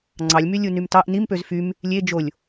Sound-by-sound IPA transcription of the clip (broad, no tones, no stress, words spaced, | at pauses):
ŋ͡ǀɑlʲmy lʲunymtɑʔ nimpøz fym | lʲe d͡ʒolʲ